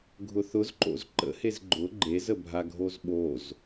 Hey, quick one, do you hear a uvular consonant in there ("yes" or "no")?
no